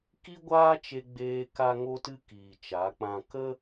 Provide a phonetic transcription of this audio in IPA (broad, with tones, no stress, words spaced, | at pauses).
ki˦ɡʷaː˦t͡ʃe˧ɡ͡beː˧ ka˦ŋo˦tɨ˦ kiː˨t͡ʃa˨˦k͡pã˧ kə˦